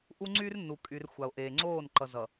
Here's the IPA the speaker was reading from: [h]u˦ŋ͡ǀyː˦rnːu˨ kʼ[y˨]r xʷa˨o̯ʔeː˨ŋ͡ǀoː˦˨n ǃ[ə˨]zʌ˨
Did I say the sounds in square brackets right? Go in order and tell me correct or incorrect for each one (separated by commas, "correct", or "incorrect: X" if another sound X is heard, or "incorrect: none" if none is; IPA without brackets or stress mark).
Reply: incorrect: ʔ, correct, incorrect: ʌ˨